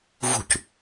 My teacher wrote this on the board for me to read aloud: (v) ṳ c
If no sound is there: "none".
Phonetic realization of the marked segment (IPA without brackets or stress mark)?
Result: v